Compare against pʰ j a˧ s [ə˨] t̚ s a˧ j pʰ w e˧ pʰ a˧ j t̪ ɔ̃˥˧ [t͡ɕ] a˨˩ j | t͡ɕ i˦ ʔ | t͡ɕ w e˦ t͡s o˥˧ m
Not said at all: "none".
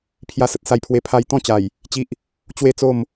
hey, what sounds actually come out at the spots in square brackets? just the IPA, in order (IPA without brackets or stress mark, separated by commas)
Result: ə˨, t͡ɕ